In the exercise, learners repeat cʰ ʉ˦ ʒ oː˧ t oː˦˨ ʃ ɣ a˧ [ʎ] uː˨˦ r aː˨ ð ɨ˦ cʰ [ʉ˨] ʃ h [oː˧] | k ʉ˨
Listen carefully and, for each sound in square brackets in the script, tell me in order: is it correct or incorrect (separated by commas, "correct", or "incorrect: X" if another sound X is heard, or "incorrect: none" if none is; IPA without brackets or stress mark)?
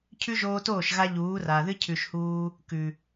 correct, correct, incorrect: uː˧